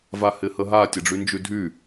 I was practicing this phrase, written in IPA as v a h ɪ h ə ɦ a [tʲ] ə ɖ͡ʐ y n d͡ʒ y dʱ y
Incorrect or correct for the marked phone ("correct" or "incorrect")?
correct